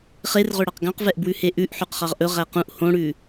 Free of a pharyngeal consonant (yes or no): no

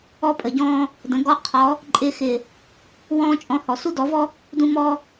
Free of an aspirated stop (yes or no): no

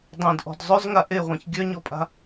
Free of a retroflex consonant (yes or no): yes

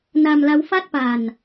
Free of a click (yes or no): yes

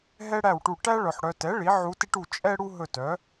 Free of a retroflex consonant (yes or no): no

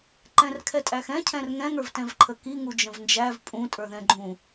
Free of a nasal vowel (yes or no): no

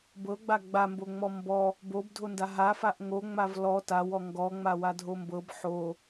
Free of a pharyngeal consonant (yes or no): no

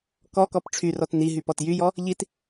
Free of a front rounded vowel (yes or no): no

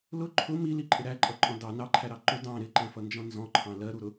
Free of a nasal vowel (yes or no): no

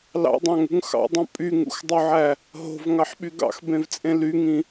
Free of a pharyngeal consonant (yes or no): no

